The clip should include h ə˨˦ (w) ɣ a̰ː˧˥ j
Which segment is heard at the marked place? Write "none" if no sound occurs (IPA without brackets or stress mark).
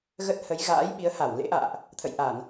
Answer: j